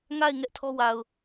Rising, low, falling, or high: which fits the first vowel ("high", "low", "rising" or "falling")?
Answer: falling